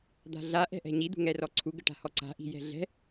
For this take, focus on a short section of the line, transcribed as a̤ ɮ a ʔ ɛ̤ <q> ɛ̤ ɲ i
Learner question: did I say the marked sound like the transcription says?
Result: no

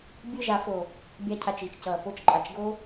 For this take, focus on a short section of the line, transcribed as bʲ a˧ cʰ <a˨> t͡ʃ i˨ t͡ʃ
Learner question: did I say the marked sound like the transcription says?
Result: yes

